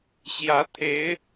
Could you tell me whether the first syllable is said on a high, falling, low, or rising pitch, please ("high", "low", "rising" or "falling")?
rising